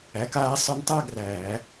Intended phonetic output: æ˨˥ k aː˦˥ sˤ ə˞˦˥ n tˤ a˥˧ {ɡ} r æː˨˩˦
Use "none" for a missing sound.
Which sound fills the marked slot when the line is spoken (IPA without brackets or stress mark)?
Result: ɡ